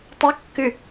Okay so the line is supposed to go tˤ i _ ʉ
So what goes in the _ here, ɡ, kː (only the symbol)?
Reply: kː